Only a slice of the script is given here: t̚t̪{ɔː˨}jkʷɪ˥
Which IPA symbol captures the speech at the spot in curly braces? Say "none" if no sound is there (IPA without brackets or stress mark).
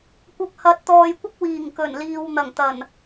ɔː˨